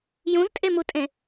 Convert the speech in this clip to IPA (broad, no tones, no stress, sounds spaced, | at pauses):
j ũ z tʼ e m u tʼ ẽ